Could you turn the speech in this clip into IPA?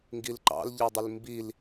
ŋ ɡ i l ǃ ɑ̰ l ʎ ɑ dˤ ɪ l m b i l

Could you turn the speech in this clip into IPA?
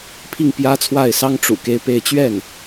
pʰ i˥˩ ŋ p j ä˥ t͡sʰ w a˥˩ ɪ̯ s ɑ˥ ŋ ʈ͡ʂ ṵ˨˩ k e˥ ɪ̯ p e˥˧ ɪ̯ t͡ɕ ɥ ɛ˥˩ n

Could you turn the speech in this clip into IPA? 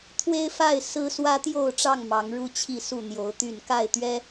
t̪ʰ w e˦ ɪ̯ f a˥˨ ɪ̯ s ɹ̩˦ s w ä˦ t̪ j o˥˨ ʊ̯ ʈ͡ʂ ɑ˥˨ ŋ m ɑ˨˦ ŋ ɻ u˦ t͡ɕʰ i˥˨ s u˥˨ n̪ j o˨˦ ʊ̯ t̪ y˥˨ n k a˥˨ ɪ̯ t̪ ɥ ɛ˦

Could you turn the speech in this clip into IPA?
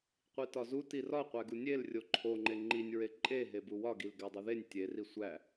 qʷ i t ɒ z u t i r ɒ qʷ æ ɡ u nʲ e l rʲ o ǃʰ o ŋ͡ǃ e ŋ͡ǃ i nʲ ɹ e ǃʼ e ɦ e b u w ɒ ɡ i l ɡ æ dˤ u ð e nʲ tʲ e r i sʷ æ

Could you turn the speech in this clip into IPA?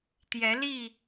t̪ j ɛ˨˦ l i˥˨

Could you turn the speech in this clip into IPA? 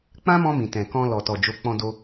k͡p ã˦ m ɔ̃˧ m ĩ˨ t ɛ̃˨ k ɔ̃˧ l ɔ˨ t ɔ˨ d͡ʒ o˨˦ k͡p ɔ̃˧ d o˧

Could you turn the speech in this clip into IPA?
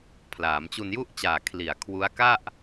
pʰ l aː˩˦ m t͡ɕ u˧ n j u˥˩ ʔ t͡ɕ aː˨˩ kʰ l i˨˩ a̯ kʰ w u˦˥ a̯ k a˥˩ ʔ

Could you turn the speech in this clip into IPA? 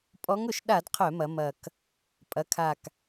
pʼ ɔ˧˥ ŋ ʊ˧˩˧ ʃ ɗ a˧˩˧ d qʰ œ˧˩˧ m ɐ˩˧ m ɐ˨˩ k | pʼ ɐ˩˧ kʰ a˨˩ k

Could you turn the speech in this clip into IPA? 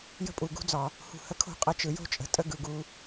j ə̤˦ pʼ u˨ ɡ ṳ˦ d͡z ɒ˨ | h ṳ˨ h ə˧ kʰ o̤˦˨ qʼ ə˧ t͡ʃ ɯ˨ j o̤˦ t͡ʃʼ ə̤˨ tʼ ə˦ ɡ ɯ˨ ɡ u˧

